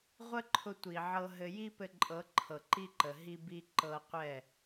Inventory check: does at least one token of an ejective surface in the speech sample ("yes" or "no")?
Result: yes